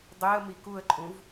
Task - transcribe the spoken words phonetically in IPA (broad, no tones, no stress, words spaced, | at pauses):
dˤiə̯mi kuə̯ǃʼũv